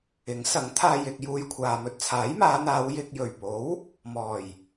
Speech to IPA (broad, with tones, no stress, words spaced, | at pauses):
ɪ˨˥ŋsɐ˨˥ŋt̪ʰaː˧j ɪ˧k̚ juː˧jkʷʰaː˨mɵ˧t̚ t͡sʰaː˨˥jmaː˨˧n̪aː˨˧w jɪ˧k̚ jɵ˨˩ɥpo˨˥w | mɔː˨˩j